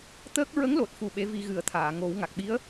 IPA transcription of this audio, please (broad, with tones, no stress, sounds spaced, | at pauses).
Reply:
t̪ əː˦˥ k̚ ɹ ə˧˥ ŋ l o˨˩ t̚ f u˨˩ ɓ e˧˥ v i˧ ɣ ɨ˨˩˦ ə̯ t̪ʰ aː˨˩˨ ŋ o˨˩˦ w ŋ a˨˩ k̚ ɓ i˧˥ ə̯